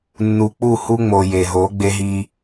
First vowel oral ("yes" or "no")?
yes